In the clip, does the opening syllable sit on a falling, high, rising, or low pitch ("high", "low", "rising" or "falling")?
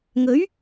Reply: rising